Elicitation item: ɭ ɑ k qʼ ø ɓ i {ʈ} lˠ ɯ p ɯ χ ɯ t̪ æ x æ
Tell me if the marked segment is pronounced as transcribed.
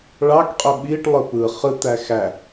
yes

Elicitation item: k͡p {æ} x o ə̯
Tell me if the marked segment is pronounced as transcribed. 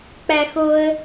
yes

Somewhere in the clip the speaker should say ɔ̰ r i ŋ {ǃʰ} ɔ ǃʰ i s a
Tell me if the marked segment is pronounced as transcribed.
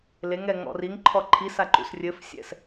yes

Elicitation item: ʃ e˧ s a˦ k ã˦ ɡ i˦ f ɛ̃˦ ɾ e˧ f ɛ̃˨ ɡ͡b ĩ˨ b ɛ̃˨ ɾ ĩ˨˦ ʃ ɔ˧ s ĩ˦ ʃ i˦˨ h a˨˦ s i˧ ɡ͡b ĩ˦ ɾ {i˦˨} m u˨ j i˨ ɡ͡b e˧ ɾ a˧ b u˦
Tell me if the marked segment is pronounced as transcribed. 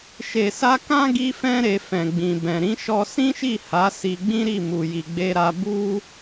yes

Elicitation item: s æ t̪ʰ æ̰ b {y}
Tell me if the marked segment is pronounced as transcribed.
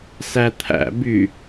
yes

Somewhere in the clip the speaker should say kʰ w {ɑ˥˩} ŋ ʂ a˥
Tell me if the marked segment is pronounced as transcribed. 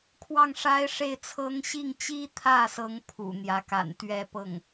yes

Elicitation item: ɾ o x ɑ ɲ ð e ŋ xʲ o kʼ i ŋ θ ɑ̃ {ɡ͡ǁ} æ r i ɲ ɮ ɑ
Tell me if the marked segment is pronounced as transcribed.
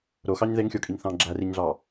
yes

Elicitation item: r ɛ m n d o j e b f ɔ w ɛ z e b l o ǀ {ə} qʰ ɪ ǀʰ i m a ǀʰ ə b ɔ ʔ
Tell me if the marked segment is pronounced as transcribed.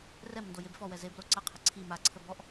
no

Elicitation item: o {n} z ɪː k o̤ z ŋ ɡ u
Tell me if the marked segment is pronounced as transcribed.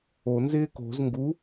yes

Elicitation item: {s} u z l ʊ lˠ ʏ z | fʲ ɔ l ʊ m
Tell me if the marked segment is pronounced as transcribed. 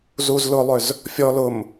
no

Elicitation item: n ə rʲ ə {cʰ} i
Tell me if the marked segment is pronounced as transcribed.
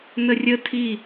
no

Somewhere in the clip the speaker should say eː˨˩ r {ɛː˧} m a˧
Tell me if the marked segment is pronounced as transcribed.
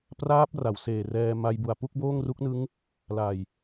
yes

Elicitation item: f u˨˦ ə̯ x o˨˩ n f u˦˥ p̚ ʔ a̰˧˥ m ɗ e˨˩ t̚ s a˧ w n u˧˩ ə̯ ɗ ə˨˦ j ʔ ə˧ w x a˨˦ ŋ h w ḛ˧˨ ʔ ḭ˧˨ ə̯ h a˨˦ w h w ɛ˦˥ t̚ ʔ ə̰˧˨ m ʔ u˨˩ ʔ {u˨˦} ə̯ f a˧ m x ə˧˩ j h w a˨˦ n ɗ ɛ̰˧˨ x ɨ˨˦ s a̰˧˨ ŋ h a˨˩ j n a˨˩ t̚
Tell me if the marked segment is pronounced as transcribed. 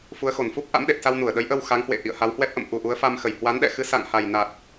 yes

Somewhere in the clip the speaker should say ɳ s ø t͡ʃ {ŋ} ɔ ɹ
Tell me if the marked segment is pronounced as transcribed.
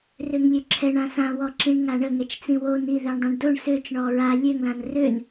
no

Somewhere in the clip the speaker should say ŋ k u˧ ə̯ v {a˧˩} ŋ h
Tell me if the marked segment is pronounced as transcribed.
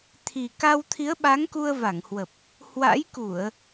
yes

